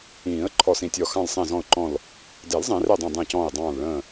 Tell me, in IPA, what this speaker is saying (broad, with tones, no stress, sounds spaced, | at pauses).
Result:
ĩː˨˩˦ ə̯ ǃʰ ɔ˧˩ s ĩ˧˩ tʲ ɔ˧˩ x ɑ̃˧˩ l sˤ ɛ̃˧˩ z ɔ̃˧˩ ʊ̯ ǃ ɔ̃˧˩ l | d ɛ˨˩˦ l zˤ ẽ˨˩˦ r ɛ˧˩ dˤ ɛ̃˧˩ dˤ ɛ̃˧˩ c ɔ̃ː˧˩ ɪ̯ dˤ ɑ̃ː˧˩ l ɭ ə̃ː˧˩